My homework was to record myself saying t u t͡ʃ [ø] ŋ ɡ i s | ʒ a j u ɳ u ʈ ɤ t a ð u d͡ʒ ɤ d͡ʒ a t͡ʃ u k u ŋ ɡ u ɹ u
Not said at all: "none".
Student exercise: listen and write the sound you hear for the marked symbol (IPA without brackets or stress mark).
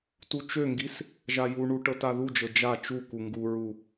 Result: ø